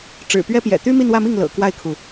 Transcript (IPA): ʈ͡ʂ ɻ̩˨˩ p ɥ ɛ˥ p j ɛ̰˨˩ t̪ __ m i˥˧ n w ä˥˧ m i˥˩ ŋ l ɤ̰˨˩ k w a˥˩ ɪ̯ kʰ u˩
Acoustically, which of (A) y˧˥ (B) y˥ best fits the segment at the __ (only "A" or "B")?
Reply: B